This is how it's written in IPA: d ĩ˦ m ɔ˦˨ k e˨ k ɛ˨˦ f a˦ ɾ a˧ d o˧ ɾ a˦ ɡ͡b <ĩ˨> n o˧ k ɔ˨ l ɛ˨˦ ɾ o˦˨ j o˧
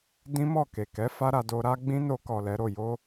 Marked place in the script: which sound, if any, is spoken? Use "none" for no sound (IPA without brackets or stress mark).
ĩ˦